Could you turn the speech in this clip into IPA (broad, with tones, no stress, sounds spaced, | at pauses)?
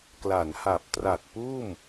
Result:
k l a˩˦ n h a˨˩ p̚ t r a˨˩ t̚ p uː˥˩ m